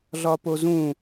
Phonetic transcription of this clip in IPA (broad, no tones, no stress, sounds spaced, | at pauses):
ɮ ɒ p o z ũ